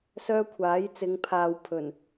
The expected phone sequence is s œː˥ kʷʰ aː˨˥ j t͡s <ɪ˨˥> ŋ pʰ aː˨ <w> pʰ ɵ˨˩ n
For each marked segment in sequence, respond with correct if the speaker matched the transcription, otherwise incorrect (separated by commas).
incorrect, correct